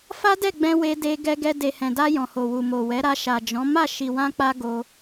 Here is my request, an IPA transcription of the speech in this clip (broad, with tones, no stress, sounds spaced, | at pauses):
f a˦ d ɛ˦˨ ɡ͡b ɛ̃˧ w e˧ d e˧ ɡ ɛ˧ ɡ ɛ˧ d e˨ h ɛ̃˨ d a˧ j ɔ̃˨ h o˨ w u˨ m o˨ w ɛ˨˦ ɾ a˧ ʃ a˨ d͡ʒ ɔ̃˨˦ m a˦˨ ʃ i˨ w ã˧ k͡p a˧ ɡ o˧